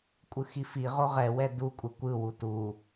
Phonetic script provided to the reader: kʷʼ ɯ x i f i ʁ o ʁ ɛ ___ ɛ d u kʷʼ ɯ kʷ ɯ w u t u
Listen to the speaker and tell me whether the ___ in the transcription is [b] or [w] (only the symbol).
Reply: w